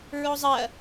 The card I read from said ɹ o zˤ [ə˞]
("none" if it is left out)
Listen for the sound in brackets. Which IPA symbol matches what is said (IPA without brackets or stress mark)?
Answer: ɐ